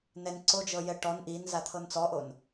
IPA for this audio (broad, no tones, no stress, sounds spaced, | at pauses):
n ɛ n ǀ o d͡ʒ ɤ j ɛ ʈ ɔ n ʔ i n z a t̪ʰ ɤ n t͡s ɔ ʔ o n